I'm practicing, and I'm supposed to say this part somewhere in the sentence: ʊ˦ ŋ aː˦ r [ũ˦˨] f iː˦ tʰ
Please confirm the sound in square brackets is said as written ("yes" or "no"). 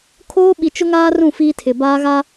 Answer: yes